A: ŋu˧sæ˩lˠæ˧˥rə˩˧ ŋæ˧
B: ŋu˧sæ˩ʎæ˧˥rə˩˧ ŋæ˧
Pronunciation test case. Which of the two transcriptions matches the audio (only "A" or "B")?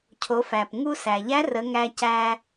B